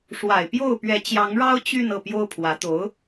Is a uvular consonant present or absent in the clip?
absent